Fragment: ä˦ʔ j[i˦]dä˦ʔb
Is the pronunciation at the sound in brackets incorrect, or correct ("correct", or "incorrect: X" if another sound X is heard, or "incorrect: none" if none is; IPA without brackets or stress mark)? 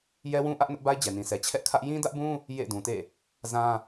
incorrect: ĩ˦